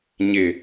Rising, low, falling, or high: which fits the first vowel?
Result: low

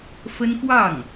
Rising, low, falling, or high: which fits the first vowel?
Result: high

